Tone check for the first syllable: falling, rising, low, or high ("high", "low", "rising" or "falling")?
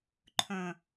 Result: low